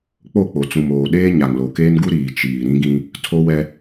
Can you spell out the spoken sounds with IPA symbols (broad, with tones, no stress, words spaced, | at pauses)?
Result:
k͡po˦˨k͡po˨t͡sũ˨m oː˨ ɗeː˦ ɲa˨ŋlo˨keː˦nɡu˦ ɾiː˨ t͡ʃiː˨ ɾĩ˦ɡĩ˦ | tʰo˦wɛ˦